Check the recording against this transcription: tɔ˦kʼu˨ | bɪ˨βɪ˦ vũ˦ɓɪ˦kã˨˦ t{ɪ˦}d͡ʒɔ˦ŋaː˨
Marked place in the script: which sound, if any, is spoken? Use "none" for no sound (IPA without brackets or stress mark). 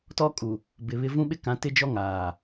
ɪ˦